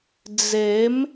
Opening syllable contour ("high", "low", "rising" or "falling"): rising